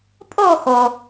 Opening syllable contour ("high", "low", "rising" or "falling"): falling